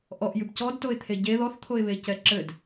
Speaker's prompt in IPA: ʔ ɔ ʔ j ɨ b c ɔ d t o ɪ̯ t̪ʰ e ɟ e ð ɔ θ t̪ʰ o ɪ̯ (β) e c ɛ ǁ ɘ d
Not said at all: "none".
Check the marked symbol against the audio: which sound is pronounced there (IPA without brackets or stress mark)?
β